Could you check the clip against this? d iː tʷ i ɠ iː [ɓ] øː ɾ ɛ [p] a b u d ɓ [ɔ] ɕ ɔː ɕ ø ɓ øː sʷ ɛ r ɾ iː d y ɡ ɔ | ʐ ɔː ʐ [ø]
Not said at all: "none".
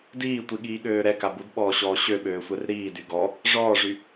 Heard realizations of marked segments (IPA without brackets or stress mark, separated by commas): ɠ, k, ɔː, y